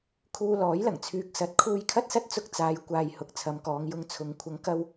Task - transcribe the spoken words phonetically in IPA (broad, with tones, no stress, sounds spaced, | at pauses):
kʰ uː˧ l ɔː˨˥ j l ɐ˨˩ ŋ t͡sʰ yː˨ k̚ s ɐ˨˥ t̚ kʰ uː˧ j kʰ ɐ˥ t̚ s ɐ˥ t̚ t͡s ʊ˧ k̚ t͡s aː˨˧ j kʷ aː˨ j h ʊ˨ k̚ t͡sʰ ɐ˨˧ m k ɔː˨˧ ŋ j ʊ˧ ŋ t͡sʰ ʊ˨ ŋ kʷʰ ɐ˨˧ ŋ k ɐ˧ w